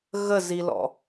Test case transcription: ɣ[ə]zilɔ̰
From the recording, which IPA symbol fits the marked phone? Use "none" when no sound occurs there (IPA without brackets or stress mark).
ə